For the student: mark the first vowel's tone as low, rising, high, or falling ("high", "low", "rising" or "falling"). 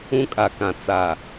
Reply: high